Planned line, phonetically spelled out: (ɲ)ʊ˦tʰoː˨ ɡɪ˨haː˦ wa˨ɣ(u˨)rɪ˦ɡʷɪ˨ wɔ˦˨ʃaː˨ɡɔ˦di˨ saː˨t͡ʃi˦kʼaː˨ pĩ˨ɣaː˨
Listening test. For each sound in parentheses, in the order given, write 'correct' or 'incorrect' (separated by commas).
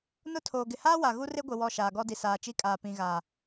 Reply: incorrect, incorrect